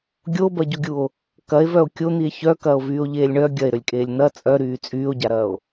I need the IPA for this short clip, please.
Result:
ɡʲ o b ɐ ɟ o ɡʲ u o̯ | k ɐ e̯ v œ o̯ kʲ o n̪ i e̯ ç œ k ɐː o̯ v yː o̯ ʎ eː lʲ ɳ œ ɡʲ ɐ e̯ ɾ ø lʲ kʼ eː lʲ n̪ ɐ t͡sʼ œ ɾ yː t͡sʼ yː o̯ ɟ a ɾ ɐː o̯

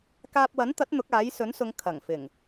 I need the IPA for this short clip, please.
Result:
k aː˧ p̚ w ɐ˨˥ n t̪ ɐ˨˥ t̚ n̪ ʊ˨˥ k̚ aː˨˥ j s ɵ˨˥ n s ʊ˨˧ ŋ kʰ ɐ˨˩ ŋ f ɪ˨˩ ŋ

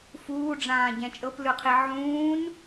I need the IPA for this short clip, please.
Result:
f uː ɖ͡ʐ ãː ɟ ɛ̃ t͡ʃʼ ɤ p l ɯ qʰ i ʕ ũː n

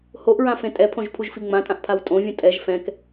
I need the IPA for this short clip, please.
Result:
h o ʔ ɹ ã f ẽ tʼ ɛ pʰ õ ʒ pʰ u ʒ f i ŋ͡m ã tʼ ã ʔ pʰ a w tʼ õ vʲ ũ tʼ ɛ ʒ f ɛ̃ k

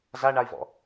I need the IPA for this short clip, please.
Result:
z a ɳ a i̯ v ɔ̰

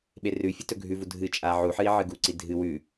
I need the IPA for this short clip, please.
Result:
ɓ e r ʉ fʲ ɨ t ɵ ɡʱ ʉ v u dʱ ɨ t͡ʃʼ a ʕ u ħ ɨ i̯ ʕ ɨ ɡ u ǀ i dʱ ɨ w ʉ

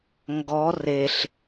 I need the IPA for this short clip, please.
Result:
ŋ ɡ ɔ r e ɬ

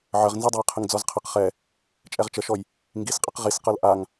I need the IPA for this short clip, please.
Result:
ʕ ə ʁ n z i dˤ ɤ j qʰ ə ŋ d͡z ɔ z qʰ ə q χ ɛ | t͡ʃʼ ɛ ʁ t͡ʃ ə ʃ ɔ j | ŋ ɡ i s qʼ ə q ʁ i s q ɤ l ʔ a ŋ

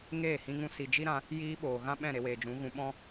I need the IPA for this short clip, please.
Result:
ŋ eː˦˨ h ĩ˧ ŋ ũ˧ s i˨ d͡ʒ i˦ ɾ ã˧ | j iː˧ ɓ oː˨ ɣ ã˦ ɓ ɛ̃˦˨ ɾ e˧ w eː˨ d͡ʒ ũ˨˦ ɣ ũ˧ ɓ ɔ̃˦

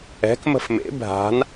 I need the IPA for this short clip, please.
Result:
ɛ̤ k m ə̤ f m ḛ bʱ a̤ n

